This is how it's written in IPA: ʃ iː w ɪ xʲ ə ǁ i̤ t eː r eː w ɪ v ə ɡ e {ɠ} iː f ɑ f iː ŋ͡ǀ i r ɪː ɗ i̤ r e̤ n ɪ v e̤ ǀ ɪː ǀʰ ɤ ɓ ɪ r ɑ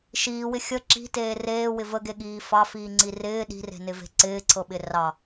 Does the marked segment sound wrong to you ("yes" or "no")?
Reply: no